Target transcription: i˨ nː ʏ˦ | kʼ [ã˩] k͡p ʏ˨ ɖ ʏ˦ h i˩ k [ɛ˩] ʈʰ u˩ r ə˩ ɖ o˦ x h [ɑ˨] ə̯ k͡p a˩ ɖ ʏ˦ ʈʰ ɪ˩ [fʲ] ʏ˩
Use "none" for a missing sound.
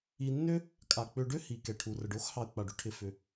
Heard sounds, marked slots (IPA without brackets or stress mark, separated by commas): a˩, ɛ˩, ɑ˨, f